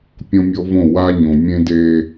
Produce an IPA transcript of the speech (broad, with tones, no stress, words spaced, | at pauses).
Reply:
pʲõ˦mʲɔ˦võ˦˨ wa˦ ɲõ˨ mʲẽ˦de˦